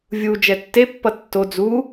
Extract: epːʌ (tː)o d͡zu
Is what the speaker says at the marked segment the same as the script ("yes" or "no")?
yes